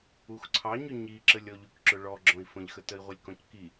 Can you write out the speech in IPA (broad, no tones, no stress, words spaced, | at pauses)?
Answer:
uxǀʰɑɲʊ ɲiǁəlʲ ɔʎʉkǁʊɭɔ ɡ͡ǁɔ̃i̯fə̃ʎxə təi̯ʁʷəlʲkɔ̃cki